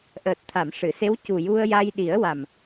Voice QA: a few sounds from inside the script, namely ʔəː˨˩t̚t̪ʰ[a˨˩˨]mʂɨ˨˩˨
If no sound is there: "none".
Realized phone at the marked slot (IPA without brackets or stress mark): a˨˩˨